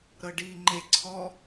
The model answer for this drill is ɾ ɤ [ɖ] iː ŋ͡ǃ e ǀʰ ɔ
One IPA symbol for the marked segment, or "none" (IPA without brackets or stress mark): ɖ